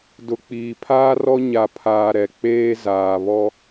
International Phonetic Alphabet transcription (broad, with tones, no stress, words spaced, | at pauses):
dʊ˨k͡piː˨pʰaː˦rɔ˦ ɲa˨pʰaː˨ ɾɛ˨ k͡peː˦zaː˨ βɔ˦